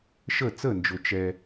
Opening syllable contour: falling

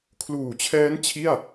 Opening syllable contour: low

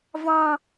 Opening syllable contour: high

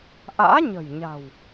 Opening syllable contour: rising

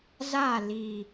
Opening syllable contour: falling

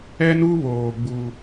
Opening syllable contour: high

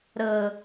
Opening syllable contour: low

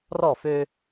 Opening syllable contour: falling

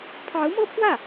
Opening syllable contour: rising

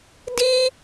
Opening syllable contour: high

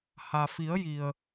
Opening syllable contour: low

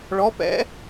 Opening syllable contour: rising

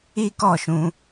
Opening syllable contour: high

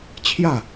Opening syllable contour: falling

